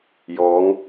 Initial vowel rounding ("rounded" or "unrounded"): rounded